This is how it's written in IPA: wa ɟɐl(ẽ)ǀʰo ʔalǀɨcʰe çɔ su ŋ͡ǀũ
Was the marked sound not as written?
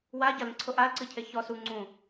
no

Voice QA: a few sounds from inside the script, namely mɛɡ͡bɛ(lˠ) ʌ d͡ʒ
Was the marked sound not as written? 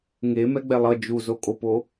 no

